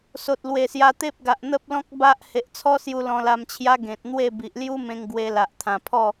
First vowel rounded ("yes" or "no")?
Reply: yes